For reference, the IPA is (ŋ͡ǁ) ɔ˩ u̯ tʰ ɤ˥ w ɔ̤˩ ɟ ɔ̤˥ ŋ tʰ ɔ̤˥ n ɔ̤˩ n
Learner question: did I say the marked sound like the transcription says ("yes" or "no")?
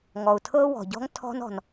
no